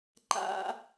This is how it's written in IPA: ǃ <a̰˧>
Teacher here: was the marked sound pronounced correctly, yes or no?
yes